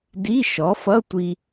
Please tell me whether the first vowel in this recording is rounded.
no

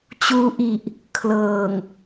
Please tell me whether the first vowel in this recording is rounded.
yes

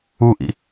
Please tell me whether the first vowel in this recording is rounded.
yes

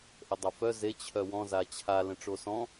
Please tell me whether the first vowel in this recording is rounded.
no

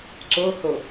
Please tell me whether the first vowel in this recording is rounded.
yes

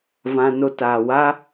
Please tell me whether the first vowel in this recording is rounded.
no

